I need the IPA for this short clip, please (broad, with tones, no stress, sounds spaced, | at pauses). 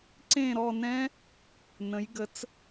ǀ ẽ˦˨ ɾ ɔ˦˨ n ɛ̃˦˥ | n ə̃˩˧ j ɡ ə˩˧ t͡s